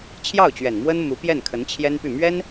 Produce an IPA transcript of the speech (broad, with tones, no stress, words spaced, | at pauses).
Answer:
t͡ɕʰjɑ˥˩ʊ̯t͡ɕɥɛ˨˩n mwə˥n mu˧˥ pjɛ˥˩nkʰə˧˥nt͡ɕʰjɛ˥npy˥˩ mɥɛ˥n